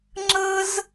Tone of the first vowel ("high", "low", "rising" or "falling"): high